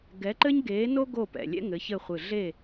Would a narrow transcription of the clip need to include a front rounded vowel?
no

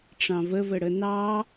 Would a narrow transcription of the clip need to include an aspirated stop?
no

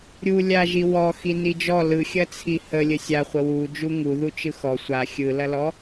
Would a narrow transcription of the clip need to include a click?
no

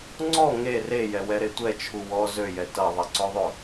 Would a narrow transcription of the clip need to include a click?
yes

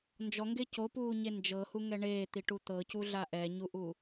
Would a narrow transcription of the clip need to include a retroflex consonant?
yes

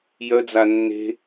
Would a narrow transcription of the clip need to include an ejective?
no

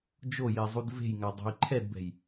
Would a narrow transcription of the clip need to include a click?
yes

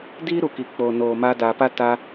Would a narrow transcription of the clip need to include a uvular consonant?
no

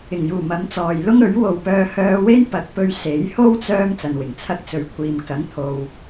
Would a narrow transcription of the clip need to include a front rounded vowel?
yes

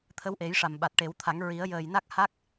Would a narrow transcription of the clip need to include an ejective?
no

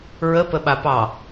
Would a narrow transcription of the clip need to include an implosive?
yes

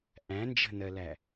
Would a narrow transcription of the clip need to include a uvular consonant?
no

